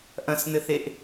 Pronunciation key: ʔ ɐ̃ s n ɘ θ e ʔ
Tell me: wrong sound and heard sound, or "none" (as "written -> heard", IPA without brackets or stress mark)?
none